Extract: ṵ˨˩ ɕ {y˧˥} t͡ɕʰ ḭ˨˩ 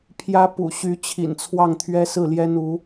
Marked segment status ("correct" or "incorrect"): correct